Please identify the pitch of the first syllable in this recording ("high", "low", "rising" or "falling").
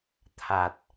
low